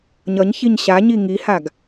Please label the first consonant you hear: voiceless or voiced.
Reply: voiced